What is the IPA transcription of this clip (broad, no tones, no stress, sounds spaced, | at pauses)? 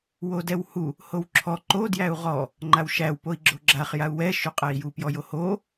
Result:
w o d ɛ w h u | h o w ǁʰ ɔ ǃ o d j æ u̯ ʁ ɔ | ŋ͡ǃ a w ʃ æ w p o i̯ ɡ͡ǁ o ɡ͡ǁ a χ j a u̯ w ɛ ʃ u qʼ ɛ i̯ j u p j ɔ j o h o